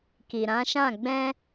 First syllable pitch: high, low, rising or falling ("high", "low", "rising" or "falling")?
low